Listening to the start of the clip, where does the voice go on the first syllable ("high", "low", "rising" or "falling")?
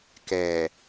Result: low